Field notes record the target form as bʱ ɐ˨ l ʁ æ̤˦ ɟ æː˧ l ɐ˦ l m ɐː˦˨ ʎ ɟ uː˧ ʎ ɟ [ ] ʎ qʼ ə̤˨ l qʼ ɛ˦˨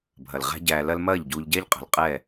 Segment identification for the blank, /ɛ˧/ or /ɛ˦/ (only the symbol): ɛ˦